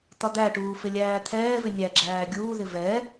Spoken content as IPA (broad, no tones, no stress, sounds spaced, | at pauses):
t̪ ɒ d̪ æ ʈ uː f ɪ lʲ æː t̪ʰ ɛː v ɪ nʲ æ ɡ͡ǁ æː ɡʲ uː ð ɪ v ɛ